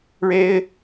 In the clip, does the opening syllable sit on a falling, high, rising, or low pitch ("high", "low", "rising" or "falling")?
high